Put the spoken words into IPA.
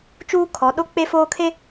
t͡ʃ uː˦ kʰ ɔ˨˦ ɗ o˦ k͡p e˦ f oː˦ kʰ e˦

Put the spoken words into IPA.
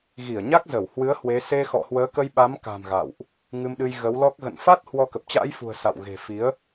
ɣ i˧˩ ə̯ ɲ a˦˥ k̚ z ə˧˩ w h w ɨ˨˦ ə̯ h w e˨˦ s e˧ x ɔ̰˧˨ h w əː˨˦ k ə˧ j ɓ a˨˦ m k a̤˨˩ m ɣ a̰˧˨ w ʔ | ŋ ɨ˧ m ɗ ɨ˧ j ɣ ə˨˦ w l ɔ˦˥ k̚ ɣ ə̰˧˨ n f a˦˥ t̚ h w ɔ˧ k ə˨˩ p̚ t͡ɕ a̰˧˥ j f ṳ˨˩ ə̯ s a̰˧˨ w ɣ e̤˨˩ f i˨˦ ə̯

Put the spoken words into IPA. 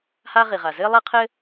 h a˥ ʁ i˩ ʁ a˩ z ɘ˥ lˠ ɐ˥ qʰ ɘ˥

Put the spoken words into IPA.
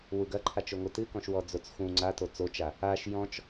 w u ɡ ɐ ǃʰ a t͡ʃ o ŋʷ ɨ t ɨ k ɔ̃ ʃ w ɔ d͡z o t͡s x ũ ŋ͡ǀ a t o t͡s o t͡ʃ a | a ʃ j ɔ̃ t͡ʃ

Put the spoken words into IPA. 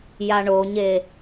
j a ɳ o ɲ e

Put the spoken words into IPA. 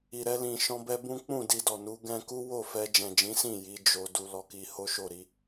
i˨ ɾ ɛ˧ l ĩ˨ ʃ ɔ̃˧ b ɛ˧ b ũ˦ k͡p ũ˦˨ d i˧ d ɔ˨ n u˨˦ ɡ ɛ̃˧ k u˦ w o˦˨ f ɛ˧ d͡ʒ ɛ̃˨ d͡ʒ ĩ˨˦ s ĩ˦˨ j i˨˦ d͡ʒ o˧ d u˧ l ɔ˧ k i˧ h o˦ ʃ o˦˨ ɾ i˧

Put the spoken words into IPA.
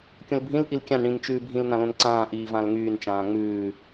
kʲ õ l bʱ ĩ l ʔ i l kʲ ã n ɽ ĩ n t͡ʃ ʉː bʱ ĩ l n ã l õ n ǀ ãː ʔ iː v ã l ŋ yː n t͡ʃ ãː ŋ͡m ʉː

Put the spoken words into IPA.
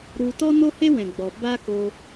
ɾ u˧ t ɔ˦ n o˦ h e˦ w ɛ̃˨ ɡ͡b ɔ˨ b a˦ k o˧

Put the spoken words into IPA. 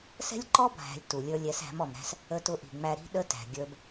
s ɛ̤˦ lʲ ǃ ɔ˦ bʱ æ̤˨ lʲ t u˨ lʲ ə˞˧ lʲ ɛ˨˦ s æ̤˨˦ m ɔ˨ m ɾ æ̤˦ s | ə˧ t ʊ˧ ʔ i̤˨ ŋ͡m æ˧ ɾ i̤˦ ɗ ə˦ t æ̤˨ ɡʲ ə˞˦ b

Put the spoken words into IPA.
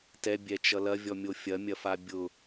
t ɛ bʲ ɛ t͡ʃ ʌ l ɐ vʲ ɔ mʲ o fʲ ɐ mʲ ɐ f a bʲ ʊ

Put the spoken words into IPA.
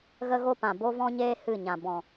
ɣ ə˦ ɣ o˦ p ã˨ b o˦ v ɔ̃˦ ɲ eː˦ h ɨ˦˨ ɲ ã˨ b ɔ̃˨

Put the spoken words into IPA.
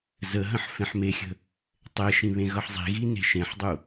z ə ɦ ə̃ ħ f ẽ ħ m e xʲ ə̤ | tˤ e ʃ ĩ β ẽ ɣ ʌ ħ zˤ i̤ ɣ i n e̤ ʃ ẽ ħ dˤ u

